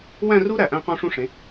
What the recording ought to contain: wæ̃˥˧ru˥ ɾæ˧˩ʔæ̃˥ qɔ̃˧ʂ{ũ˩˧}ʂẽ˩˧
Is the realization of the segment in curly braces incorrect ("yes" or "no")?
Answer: yes